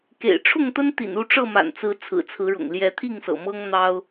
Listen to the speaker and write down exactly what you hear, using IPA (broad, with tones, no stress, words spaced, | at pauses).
kḛ˨˩ɪ̯ ʈ͡ʂʰʊ˥˨ŋt̪ə˦n t̪ḭ˨˩n u˥˨ ʈ͡ʂɤ˥˨ma̰˨˩nt͡sɹ̩˨˦ t͡sʰɹ̩˨˩t͡sʰɹ̩˨˦ɻʊ̰˨˩ŋ ljɛ˨˦t̪ʰi˥˨ŋsɤ̰˨˩ mɤ˦ŋn̪ɑ˦ʊ̯